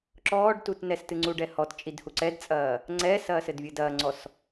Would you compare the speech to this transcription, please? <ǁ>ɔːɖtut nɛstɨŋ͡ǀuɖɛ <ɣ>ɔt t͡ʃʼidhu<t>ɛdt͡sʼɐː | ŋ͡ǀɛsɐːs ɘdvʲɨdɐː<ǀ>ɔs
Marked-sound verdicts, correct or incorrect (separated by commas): correct, incorrect, incorrect, incorrect